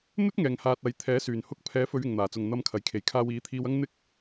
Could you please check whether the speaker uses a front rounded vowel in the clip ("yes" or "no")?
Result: yes